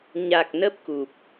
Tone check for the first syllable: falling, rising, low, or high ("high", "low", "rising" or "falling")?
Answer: low